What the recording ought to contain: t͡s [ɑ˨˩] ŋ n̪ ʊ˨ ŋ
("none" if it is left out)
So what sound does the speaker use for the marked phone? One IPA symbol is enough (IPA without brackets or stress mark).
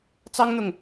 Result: ɑ˥